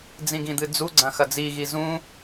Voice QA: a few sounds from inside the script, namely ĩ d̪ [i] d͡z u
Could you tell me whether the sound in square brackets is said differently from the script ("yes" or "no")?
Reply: yes